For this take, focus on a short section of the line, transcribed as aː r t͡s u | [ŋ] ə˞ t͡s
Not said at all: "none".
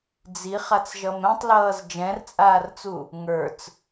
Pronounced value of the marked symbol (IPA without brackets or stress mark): ŋ